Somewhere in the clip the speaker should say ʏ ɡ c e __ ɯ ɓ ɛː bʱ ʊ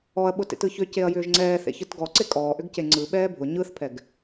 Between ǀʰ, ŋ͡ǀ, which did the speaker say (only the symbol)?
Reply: ŋ͡ǀ